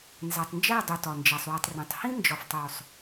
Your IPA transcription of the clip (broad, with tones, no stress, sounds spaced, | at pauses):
n z æ˨ tˤ n d͡ʒ æ˦˨ dˤ u˧ t ɒ˨ n d͡ʒ æ˧ sˤ w i˧ tˤ r ĩ˨˦ tˤ h ĩ˦ n d͡ʒ ɒ˨ f tˤ o˨ sˤ